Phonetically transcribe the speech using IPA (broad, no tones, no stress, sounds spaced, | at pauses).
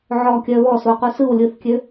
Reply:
ʕ ɔ kʲ œ β ɔ s o q u s ɯ w lʲ ɯ θ kʲ ø